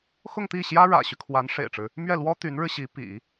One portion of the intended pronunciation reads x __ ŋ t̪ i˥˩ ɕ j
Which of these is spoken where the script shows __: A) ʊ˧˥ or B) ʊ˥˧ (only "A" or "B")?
B